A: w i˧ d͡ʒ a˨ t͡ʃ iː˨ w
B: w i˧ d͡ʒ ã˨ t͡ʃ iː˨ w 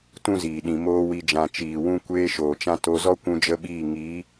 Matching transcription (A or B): B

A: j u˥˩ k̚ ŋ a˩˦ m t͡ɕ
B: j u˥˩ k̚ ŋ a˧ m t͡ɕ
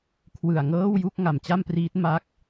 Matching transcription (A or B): A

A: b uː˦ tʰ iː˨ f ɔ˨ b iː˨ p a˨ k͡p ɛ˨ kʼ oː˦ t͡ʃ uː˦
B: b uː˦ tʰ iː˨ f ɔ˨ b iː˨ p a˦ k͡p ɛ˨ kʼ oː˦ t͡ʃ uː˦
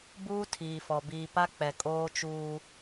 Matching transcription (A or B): B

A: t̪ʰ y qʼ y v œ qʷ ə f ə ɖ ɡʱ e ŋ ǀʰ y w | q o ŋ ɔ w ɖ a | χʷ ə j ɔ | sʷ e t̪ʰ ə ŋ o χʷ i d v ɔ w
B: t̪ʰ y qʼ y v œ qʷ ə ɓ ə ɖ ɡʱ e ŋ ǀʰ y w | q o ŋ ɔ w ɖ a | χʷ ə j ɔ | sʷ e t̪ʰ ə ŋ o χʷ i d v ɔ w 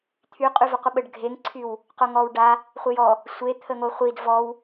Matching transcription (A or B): B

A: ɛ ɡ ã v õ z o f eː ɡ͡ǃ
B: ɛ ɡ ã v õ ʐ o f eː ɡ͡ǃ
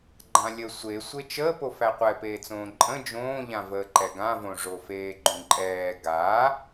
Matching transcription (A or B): B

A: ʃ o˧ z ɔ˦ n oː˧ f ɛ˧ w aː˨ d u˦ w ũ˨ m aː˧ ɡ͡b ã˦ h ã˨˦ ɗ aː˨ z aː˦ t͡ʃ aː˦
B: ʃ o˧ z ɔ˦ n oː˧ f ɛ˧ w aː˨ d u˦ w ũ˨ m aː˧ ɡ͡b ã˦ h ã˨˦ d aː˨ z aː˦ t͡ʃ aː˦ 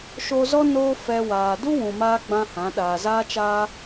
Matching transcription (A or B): A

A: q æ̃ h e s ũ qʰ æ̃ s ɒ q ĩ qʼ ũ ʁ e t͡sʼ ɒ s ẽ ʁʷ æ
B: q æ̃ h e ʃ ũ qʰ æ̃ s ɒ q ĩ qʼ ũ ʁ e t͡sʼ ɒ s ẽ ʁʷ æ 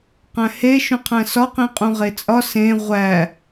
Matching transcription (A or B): B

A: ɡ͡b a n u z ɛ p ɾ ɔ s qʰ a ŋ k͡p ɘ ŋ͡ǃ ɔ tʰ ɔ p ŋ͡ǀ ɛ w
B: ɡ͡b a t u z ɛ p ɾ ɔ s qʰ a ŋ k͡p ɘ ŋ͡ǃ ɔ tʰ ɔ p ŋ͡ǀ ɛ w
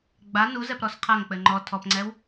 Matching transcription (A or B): A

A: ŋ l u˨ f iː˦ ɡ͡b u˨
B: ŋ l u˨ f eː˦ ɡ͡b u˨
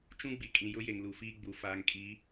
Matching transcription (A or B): A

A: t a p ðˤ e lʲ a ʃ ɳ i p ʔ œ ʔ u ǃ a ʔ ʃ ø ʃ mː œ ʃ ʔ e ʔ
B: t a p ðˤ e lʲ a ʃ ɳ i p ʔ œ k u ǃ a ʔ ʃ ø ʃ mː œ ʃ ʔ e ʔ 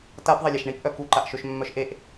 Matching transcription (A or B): B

